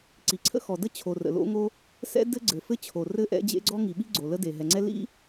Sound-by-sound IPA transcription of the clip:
ǀi˩ǀʰə̰˥xɔ˩də˥ t͡ɕʰo˩rə̰˩lo̰˥ŋo˥ | sɛ̰˥ dɘ˥ɡ͡ǀɘ˩fɘ˥ t͡ɕʰo˩ rɘ˥ ʔɛ̰˥d͡ʑḛ˥ ɡ͡ǀɔ˥ŋi˩ɓi˥ ɡ͡ǀo˩lə˥de˩ ɦɛ˩ŋ͡ǀɛ˥ lḭ˥

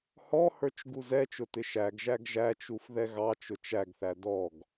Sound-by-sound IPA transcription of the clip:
hɔhə˞t͡ʃ ɡuzɛt͡ʃʊ tɪʃæɡʒæɡ ʒæt͡ʃuf ðɛɣɑt͡ʃʊ t͡ʃæɡθæ dɔɡ

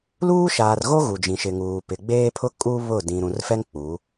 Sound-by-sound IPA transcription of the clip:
luː˦ʃaː˨rɣo˦ ɣu˨d͡ʒĩ˨ʃɪ˨ŋuː˨ pɪ˨ɡ͡beː˦pʰʊ˦ kʼu˦ βʊ˦˨ dĩ˨ ɾũ˨rfɛ˦ŋ k͡pu˨˦

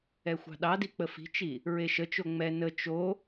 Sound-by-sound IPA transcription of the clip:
ɛxʷɑ̤ɗɑdi k͡pəfi̤t͡ʃi | ɹeʃət͡ʃo ŋ͡mɛ nə t͡ʃo

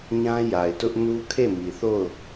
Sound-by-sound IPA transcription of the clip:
ɲã˦ja˨ɪ̯tʊ˦ʔ nu˦kʰe˦˨mi˨θo˦˨ʊ̯

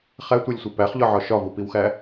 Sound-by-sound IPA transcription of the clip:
χætʷelʲsʷe pæχʎɒʕɒ ʃɒvupiwxæ

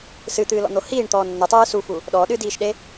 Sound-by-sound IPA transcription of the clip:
sɨt̪ɨːlɔ̰n̪o hiːɳt̪ɔː nːɘtˤɨː sufu | ɗɔɗɨdiːʃɗe

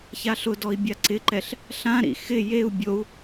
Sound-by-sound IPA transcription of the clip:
çaɬʊdɔi̯ bʲaǀɪǃɛɬ | ɬãɾḭ xɪ jeu̯ bʲou̯

